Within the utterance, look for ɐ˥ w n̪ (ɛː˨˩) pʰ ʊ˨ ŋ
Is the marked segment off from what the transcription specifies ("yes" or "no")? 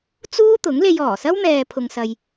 yes